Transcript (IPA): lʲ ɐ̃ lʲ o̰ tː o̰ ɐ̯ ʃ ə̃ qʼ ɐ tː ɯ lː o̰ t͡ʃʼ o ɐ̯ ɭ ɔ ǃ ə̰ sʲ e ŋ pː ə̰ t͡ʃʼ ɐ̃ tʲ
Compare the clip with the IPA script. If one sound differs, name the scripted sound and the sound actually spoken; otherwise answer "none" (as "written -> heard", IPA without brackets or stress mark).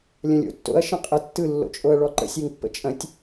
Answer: none